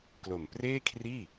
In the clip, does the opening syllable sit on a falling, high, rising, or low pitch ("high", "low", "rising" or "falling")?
low